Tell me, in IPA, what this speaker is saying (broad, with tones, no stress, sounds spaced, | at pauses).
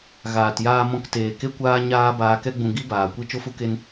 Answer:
ɣ aː˨ t j aː˧ m ɔ̃˧ k t eː˨ k e˦ kʷ aː˦ ɲ aː˦ b aː˧ k ɛ˦ ɡ͡b ũ˧ ɡ i˦ b aː˨ kʷ i˦ t͡ʃ o˦ f u˦ k e˦ n